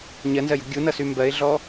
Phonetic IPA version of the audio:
ɲɜnzɜjṳ ɡʲunʌsy mbɜɪ̯ɮɔ

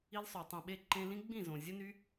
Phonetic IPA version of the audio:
i˧lsˤø˨tˤĩ˨ɓe˧ ǃẽ˧lĩ˦ ɡ͡bĩ˦˨zõ˨ zʲə˦ny˦

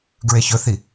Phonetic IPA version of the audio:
ɡɹeçɵθi

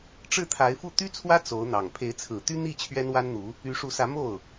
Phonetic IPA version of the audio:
ʈ͡ʂɻ̩˥˩t̪ʰa˧˥ɪ̯fu˥˩ t̪y˥t͡sʰwä˥ t͡so˧˥ʊ̯n̪ɑ˨˩ŋ pʰe˧˥ɪ̯t͡sʰɹ̩˨˩t̪y˥ n̪i˥˩ t͡ɕʰɥɛ˥nwa˥nn̪u˧˥ | y˧˥ʂu˧˥sä˧˥ mo˥˩ʊ̯

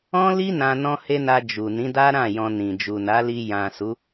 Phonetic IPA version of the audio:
ɔ̃˦li˦ nã˧ nɔ̃˧he˧ na˧d͡ʒu˨ nĩ˨˦da˦ ɾã˦˨jɔ̃˧ nĩ˨ d͡ʒu˨na˨˦li˧ jã˨ su˨˦

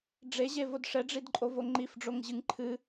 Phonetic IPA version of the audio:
ɖ͡ʐeʑevod ʂɛɖ͡ʐidǃʼovo ŋ͡ǃifɖ͡ʐoŋʑɨŋ ǃʰɨ

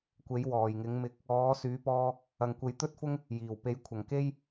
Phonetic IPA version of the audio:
kʷe˨˥j wɔː˨˩jŋɪ˨˥ŋmɪ˧k̚ | ɔː˨˥syː˨˥pɔː˧ | ɐ˨ŋkʷe˨˥j t̪ɵ˥t̚fʊ˥ŋ | jiː˨˩w pe˨˥jkʷʰɐ˨˩ŋke˥j

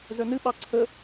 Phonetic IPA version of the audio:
zœnɨɓɑ ǀʰə

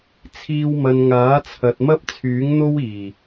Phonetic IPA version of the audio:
t͡sʰiː˧wmɐ˨n ŋaː˨˥t͡sʰɐ˨t̚mɐ˥p̚ t͡sʰyː˨˥ŋn̪o˥wiː˨˩

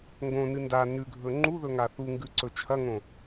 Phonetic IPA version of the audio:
ŋɡõnɨ nda nʉɡʱɵ ŋ͡ǃuðɵ ŋaθuŋɡʉ ǀɵt͡ʃʰɐŋõ

